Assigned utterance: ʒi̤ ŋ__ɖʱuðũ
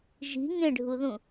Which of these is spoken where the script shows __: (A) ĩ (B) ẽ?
B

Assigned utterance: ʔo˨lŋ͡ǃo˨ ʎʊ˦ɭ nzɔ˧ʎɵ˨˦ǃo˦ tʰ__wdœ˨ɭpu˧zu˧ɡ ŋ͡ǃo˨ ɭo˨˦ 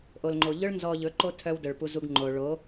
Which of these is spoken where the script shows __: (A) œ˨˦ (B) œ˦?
B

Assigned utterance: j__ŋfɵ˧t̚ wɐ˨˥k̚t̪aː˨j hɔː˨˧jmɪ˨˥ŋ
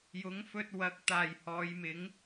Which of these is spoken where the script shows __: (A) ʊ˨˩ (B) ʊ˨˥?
B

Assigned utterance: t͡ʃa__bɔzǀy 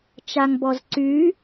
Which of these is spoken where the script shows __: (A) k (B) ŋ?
B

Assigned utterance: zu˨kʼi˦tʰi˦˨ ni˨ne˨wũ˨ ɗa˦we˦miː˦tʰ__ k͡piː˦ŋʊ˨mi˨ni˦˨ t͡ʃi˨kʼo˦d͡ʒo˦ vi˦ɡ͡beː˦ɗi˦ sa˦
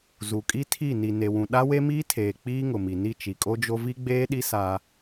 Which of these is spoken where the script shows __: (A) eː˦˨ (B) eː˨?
B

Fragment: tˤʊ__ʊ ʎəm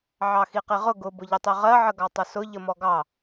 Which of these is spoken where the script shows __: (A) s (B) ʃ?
A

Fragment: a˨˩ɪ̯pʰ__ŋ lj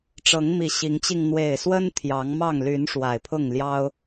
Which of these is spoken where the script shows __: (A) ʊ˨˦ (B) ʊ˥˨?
B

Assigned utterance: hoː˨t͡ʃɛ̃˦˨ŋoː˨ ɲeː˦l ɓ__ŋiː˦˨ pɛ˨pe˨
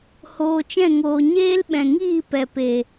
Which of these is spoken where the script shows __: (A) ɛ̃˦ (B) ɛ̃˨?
B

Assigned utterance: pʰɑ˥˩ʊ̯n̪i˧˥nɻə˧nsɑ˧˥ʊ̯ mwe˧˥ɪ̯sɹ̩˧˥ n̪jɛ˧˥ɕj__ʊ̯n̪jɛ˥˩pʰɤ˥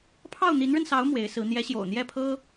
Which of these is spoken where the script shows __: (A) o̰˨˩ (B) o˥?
A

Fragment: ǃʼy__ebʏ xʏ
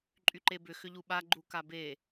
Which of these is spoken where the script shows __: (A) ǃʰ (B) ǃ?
B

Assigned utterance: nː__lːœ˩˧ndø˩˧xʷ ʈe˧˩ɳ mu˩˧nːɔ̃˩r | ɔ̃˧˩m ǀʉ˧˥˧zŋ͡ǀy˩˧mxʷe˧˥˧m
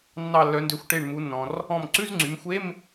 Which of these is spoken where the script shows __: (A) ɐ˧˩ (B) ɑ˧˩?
B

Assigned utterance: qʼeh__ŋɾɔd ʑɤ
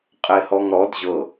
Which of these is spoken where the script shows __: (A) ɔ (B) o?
A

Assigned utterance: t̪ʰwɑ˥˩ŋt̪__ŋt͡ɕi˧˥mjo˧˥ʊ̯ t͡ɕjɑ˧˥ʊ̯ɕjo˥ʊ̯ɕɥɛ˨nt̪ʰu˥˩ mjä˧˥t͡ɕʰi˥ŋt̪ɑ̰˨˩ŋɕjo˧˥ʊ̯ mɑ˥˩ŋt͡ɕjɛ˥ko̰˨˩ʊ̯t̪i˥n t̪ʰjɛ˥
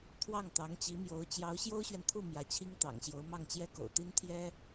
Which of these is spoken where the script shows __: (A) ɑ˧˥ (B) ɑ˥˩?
A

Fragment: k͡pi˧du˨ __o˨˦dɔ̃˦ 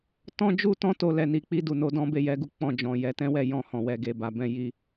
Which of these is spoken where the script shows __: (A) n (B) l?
A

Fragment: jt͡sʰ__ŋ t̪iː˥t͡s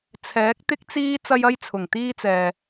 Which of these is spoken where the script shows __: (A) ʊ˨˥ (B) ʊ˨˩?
B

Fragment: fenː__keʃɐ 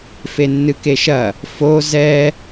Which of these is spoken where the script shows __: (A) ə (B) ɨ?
B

